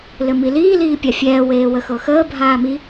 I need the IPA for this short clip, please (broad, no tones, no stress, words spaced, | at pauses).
lɘmiliː liːpʲafʲɛː weːwəxɤxəː bʱaːmi